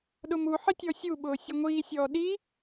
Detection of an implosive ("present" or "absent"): present